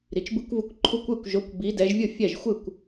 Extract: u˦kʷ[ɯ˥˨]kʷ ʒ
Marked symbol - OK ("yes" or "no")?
yes